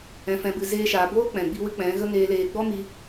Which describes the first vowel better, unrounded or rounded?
unrounded